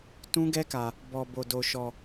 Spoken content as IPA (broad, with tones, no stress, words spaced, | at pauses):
tũ˦ɡɛ˦ka˧ | bɔ˧ bo˧do˧ ʃɔ˧